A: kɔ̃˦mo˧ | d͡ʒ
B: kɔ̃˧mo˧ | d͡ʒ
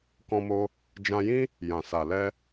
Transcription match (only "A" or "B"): B